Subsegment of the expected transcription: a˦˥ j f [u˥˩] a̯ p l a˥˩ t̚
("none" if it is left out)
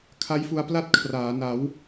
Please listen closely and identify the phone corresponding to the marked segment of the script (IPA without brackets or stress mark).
u˧